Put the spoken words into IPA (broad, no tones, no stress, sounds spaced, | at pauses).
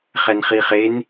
χ ɛ n χ i χ e n